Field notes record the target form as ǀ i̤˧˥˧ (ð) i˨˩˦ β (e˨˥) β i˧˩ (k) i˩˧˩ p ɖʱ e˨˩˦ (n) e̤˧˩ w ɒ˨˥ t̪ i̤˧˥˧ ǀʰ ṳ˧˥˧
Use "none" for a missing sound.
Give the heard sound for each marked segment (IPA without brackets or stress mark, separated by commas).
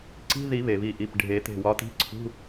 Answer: ð, e˩, ʔ, t̪